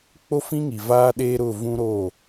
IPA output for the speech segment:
k͡po˦fĩ˦ŋi˨ vaː˦ɗeː˦ɾʊ˦˨ vũ˦ɾo˦˨

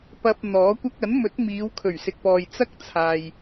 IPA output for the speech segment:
pɐ˧p̚ n̪ɔː˨˥kʷɐ˥k̚ ɐ˨˥nmɵ˨˥t̚ miː˨˧wkʰɵ˨˩ɥsɪ˨k̚pɔː˨j t͡sɐ˥k̚t͡sʰaː˨j

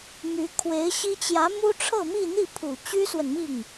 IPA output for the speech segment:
my˧˥ kʰwe˧˥ɪ̯ɕi˥ t͡ɕjä˧˥mu˥ ʈ͡ʂʰɤ˥˧mi˥˧n̪i˥˩ pʰu˨˩t͡ɕy˥swə˨nmi˥˩ŋ

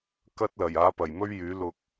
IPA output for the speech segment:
kɐ˥t̚lɐ˨˩j aː˨˥pɐ˨˩jmɵ˥ɥjyː˨˥ lʊ˧k̚

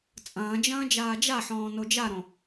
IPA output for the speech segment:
t͡sʼɐ̃ːd͡ʒɐ̃ː d͡ʒaːd͡ʒaħɔ̃ː nod͡ʒaɾõ

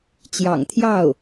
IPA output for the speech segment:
t͡ɕjɑ̰˨˩ŋt̪ʰjɑ˥˩ʊ̯

